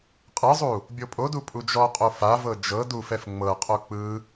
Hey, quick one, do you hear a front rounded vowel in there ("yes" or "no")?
no